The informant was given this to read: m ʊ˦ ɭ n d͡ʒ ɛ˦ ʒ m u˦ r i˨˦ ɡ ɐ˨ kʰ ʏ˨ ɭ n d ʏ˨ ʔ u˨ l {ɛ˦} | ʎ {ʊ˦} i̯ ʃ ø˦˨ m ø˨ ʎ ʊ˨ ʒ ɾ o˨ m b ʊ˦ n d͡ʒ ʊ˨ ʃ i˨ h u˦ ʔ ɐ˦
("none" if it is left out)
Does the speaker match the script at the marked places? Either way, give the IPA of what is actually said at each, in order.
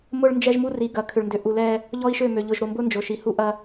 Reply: ɛ˦, ɔ˦

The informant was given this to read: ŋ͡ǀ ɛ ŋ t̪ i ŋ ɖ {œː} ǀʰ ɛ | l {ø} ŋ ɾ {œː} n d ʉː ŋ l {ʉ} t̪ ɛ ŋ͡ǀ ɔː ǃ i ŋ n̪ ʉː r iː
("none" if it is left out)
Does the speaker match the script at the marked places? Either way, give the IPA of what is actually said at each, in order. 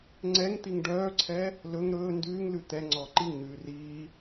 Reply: œː, ɵ, ɵː, ʉ

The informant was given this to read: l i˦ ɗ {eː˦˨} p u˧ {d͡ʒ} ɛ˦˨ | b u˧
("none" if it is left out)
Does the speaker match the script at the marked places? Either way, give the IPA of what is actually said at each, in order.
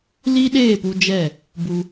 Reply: eː˦˨, d͡ʒ

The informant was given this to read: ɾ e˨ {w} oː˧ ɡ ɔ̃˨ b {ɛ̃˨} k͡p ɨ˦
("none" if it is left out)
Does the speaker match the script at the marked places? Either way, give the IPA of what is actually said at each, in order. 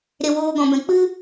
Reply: w, ɛ̃˨

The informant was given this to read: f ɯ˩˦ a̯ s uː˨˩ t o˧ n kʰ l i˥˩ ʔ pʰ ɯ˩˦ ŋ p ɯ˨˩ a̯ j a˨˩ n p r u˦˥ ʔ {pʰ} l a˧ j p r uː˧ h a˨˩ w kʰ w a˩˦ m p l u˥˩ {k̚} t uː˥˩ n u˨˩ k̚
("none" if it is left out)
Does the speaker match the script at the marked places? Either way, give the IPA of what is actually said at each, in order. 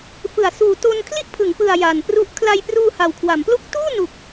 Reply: kʰ, k̚

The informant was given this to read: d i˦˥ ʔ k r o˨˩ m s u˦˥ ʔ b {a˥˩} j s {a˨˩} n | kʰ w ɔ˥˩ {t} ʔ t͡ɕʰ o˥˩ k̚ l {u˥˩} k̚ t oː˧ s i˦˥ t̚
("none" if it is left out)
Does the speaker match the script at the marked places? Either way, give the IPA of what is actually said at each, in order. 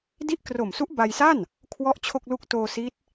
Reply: a˧, a˥˩, none, u˥˩

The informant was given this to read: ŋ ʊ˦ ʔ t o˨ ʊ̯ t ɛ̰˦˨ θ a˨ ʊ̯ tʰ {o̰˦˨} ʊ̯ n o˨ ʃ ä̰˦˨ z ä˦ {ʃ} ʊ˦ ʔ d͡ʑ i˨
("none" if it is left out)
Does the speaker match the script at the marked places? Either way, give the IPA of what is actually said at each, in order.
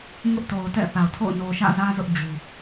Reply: o̰˦˨, z

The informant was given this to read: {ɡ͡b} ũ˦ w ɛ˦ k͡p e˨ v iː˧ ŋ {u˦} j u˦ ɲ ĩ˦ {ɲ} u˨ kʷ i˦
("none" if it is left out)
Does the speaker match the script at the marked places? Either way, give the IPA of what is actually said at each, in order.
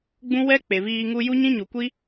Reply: ɡ͡b, u˧, ɲ

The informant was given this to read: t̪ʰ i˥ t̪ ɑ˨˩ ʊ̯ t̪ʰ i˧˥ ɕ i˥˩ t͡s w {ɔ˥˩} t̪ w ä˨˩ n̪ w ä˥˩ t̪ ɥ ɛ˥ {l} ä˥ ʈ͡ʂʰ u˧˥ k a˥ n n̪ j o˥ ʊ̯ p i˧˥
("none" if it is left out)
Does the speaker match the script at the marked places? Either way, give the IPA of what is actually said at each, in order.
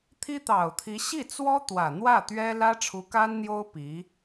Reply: ɔ˥, l

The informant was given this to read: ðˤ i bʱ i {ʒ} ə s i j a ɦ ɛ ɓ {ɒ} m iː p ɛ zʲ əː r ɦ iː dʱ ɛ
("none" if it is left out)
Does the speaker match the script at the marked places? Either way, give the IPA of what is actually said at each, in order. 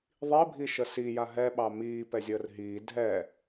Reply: ʃ, ɑ

